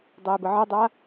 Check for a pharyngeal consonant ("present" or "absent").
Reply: present